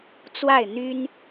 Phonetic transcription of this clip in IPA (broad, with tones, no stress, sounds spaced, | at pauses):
t͡s w a˥˩ ɪ̯ n̪ y˥ n